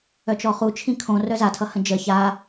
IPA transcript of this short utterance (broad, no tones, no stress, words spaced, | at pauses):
œt͡ʃɔχu t͡ʃʰĩkʰõ rœzatʰʌ hə̃d͡ʒə ça